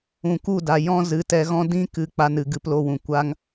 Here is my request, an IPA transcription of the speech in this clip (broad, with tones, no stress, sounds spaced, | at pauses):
ũ˨ k u˦˨ d a˨ j ɔ̃˦ z ɨ˨˦ t ɛ˧ ɣ ɔ̃˦ d ĩ˦ k ɨ˧ k͡p a˧ n ɨ˨ ɡ ɨ˧ p l o˧ w ũ˨ kʷ a˧ ŋ